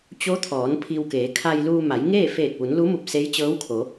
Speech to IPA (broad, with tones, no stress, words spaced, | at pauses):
t͡ɕo˧˥t̪ʰɔː˩˧n pʰi˧wkeː˩˧ kʰa˧jluː˧ ma˩˧jŋeː˥˨ feː˧˩k̚ʋu˩˧nlu˧˥mu˧˩p̚ se˧˥jt͡ɕɤː˧˥wkʰo˩˧